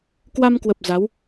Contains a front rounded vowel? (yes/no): no